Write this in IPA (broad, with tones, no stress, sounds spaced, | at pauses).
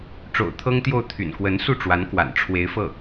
ʈ͡ʂ o̰˨˩ ʊ̯ t̪ʰ ɤ˥ ŋ t̪ j o˥˩ ʊ̯ t̪ʰ y̰˨˩ n k w ə˧˥ n s u˥˩ ʈ͡ʂ w a˧˥ n k w a̰˨˩ n ʈ͡ʂʰ w e˧˥ ɪ̯ f ɤ˥˩